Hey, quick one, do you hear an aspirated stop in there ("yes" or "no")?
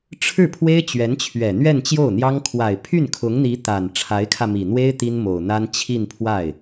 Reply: yes